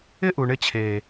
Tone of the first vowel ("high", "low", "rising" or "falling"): high